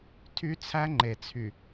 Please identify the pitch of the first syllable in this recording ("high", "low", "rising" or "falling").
high